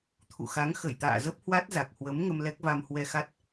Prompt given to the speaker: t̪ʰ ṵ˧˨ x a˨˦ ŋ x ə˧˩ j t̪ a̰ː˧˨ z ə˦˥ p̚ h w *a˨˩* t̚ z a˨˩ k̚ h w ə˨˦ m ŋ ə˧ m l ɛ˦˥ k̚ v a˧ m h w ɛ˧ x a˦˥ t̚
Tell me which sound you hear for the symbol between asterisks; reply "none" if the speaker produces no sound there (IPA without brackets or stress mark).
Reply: a˦˥